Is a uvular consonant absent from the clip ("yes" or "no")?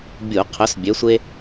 no